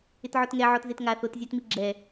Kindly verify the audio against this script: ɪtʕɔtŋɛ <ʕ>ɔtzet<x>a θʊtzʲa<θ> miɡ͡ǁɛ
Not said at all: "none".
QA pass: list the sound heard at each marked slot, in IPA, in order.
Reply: ʕ, ŋ, t

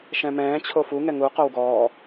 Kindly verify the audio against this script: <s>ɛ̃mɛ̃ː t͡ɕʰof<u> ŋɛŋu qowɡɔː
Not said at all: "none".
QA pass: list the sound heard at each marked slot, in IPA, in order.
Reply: ʃ, u

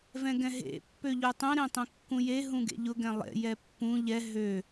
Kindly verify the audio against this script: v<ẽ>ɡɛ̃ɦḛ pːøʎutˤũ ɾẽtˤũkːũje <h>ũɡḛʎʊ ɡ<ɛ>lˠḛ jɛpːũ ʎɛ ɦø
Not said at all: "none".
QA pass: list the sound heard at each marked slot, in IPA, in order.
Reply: ɛ̃, ɦ, ɛ̃

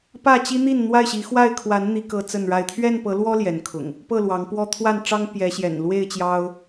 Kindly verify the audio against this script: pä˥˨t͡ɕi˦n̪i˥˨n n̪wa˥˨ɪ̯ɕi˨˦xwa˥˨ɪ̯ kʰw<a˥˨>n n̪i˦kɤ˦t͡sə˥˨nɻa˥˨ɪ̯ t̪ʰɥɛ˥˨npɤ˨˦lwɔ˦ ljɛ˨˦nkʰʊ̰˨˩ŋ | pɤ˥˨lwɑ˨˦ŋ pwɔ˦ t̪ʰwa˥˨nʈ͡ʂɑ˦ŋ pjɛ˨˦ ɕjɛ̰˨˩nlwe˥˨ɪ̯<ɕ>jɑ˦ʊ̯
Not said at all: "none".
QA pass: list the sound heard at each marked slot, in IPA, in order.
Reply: a˨˦, t͡ɕ

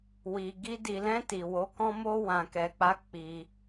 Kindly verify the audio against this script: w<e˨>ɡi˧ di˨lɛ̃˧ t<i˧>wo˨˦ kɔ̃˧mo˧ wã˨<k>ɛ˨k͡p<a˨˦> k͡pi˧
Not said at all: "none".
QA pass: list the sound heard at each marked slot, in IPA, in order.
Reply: i˨, i˨, k, a˨˦

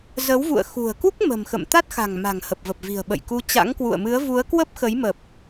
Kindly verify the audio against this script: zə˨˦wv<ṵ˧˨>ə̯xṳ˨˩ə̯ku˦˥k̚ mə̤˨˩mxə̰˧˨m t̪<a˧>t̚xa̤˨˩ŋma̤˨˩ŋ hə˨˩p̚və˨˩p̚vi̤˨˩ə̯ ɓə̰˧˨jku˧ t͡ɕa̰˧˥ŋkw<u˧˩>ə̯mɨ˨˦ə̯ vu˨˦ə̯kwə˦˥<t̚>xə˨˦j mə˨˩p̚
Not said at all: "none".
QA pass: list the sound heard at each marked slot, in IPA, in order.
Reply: ṵ˧˨, a˦˥, ṵ˧˨, p̚

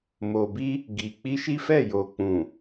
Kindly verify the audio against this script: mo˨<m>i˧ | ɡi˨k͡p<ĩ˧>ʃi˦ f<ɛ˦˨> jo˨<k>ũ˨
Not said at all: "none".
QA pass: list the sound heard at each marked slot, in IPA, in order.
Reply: b, i˧, ɛ˦˨, k͡p

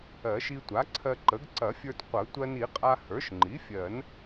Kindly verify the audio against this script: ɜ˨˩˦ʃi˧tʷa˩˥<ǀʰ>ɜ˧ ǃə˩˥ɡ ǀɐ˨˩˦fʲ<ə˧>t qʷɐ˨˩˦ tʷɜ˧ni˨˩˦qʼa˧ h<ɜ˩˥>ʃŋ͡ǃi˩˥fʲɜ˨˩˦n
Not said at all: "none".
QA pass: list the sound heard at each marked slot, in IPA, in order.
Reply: ǀʰ, ə˞˧, ə˞˩˥

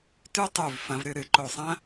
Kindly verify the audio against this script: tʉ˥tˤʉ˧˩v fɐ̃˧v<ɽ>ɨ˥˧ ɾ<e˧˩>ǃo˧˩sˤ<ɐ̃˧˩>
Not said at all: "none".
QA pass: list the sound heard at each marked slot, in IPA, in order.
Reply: ɾ, ɨ˧˩, ɐ̃˥

